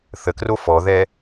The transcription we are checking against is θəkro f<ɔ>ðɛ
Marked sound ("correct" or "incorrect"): correct